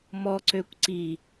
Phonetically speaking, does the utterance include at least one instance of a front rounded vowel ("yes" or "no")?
yes